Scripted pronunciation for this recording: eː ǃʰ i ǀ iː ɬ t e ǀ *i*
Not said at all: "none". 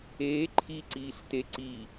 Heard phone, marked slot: i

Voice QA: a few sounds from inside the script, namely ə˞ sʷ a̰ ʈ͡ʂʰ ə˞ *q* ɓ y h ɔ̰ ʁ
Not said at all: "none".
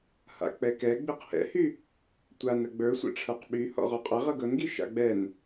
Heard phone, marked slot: q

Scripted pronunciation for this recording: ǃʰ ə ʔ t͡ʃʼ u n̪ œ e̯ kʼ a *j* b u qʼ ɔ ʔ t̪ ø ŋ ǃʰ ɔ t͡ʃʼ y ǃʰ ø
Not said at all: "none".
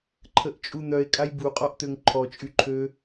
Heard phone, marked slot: j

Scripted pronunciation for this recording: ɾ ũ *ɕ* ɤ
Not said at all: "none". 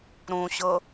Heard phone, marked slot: ɕ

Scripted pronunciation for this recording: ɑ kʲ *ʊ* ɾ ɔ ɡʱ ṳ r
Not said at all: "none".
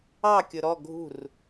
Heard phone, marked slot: ʊ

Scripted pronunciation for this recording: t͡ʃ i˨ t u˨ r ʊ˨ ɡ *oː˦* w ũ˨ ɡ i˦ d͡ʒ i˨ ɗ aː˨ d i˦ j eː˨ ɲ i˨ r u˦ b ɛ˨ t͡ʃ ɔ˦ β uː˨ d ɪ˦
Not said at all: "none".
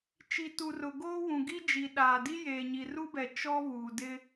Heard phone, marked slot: oː˦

